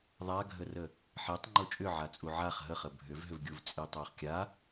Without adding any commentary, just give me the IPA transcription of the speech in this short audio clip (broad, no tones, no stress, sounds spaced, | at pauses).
ðˤ a ɡʱ ə r ə | ħ i tˤ ŋ͡ǃ o t͡ʃʼ ʏ ʕ a t͡sʼ u ʕ a χ ɦ ə χ ə bʱ ʏ v ɦ ʏ v ɡʲ u v t͡sʼ i tˤ o χ kʲ a